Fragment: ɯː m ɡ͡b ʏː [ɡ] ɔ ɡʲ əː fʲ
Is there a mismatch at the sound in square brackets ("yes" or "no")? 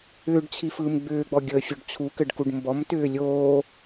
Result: yes